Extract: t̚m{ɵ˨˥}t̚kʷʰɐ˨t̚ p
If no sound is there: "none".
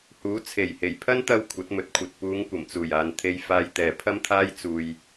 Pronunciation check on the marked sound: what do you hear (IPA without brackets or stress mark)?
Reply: ɵ˨˥